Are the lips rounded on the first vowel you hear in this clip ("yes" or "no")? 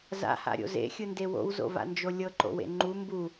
no